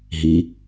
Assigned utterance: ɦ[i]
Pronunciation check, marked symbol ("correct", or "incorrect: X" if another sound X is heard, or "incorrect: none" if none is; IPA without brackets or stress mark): correct